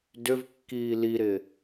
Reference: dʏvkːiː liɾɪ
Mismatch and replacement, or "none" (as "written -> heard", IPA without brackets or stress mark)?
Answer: none